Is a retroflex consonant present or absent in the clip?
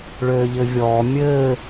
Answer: present